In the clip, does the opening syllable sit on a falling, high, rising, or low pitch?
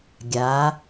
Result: rising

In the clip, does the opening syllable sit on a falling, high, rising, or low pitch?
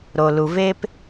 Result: low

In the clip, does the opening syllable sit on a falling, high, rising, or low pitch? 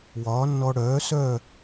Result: rising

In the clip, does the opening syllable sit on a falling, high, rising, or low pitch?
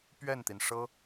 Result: falling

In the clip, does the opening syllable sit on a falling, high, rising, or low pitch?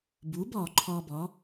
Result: rising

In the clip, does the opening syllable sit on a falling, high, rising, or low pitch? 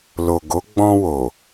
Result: low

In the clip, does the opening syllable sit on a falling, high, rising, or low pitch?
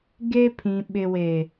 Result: high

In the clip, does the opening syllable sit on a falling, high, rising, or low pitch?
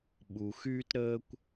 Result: low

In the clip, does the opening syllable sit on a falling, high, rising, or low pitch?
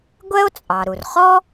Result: high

